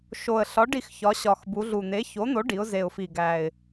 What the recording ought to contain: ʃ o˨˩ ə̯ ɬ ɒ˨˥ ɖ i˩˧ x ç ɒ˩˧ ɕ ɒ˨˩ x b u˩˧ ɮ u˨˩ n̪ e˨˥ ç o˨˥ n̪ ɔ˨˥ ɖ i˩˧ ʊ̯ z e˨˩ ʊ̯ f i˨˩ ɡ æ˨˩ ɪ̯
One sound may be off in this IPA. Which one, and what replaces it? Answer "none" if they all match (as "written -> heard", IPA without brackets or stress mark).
ɔ˨˥ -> o˨˥